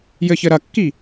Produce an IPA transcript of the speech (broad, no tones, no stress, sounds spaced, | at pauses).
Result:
j ɘ ç ɘ ɾ ɐ kː i